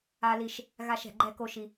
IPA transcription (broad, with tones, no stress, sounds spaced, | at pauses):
a˦ l i˦ ʃ | ɣ a˦ ʃ ɛ̤˧ ɡ͡ǃ ɛ˦ k o˦ ʃ i˦